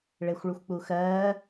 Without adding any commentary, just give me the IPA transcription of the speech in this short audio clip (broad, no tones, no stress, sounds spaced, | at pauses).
ɭ e xʷ ɭ u xʷ k͡p u x ɜː